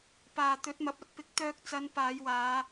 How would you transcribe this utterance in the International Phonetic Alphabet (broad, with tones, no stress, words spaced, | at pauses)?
paː˨ t̪ɵ˨˥t̚mɐ˨˥p̚ ɐ˧t̚pɪ˨˥k̚t̪œː˧k̚ t͡sɐ˨˧n paː˨˧j waː˨˧